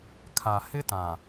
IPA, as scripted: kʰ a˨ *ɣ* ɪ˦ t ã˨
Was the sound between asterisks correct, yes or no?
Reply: no